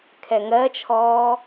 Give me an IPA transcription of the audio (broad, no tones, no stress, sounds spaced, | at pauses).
kʰ ɛ ŋ ɜ t͡ʃʰ ɔː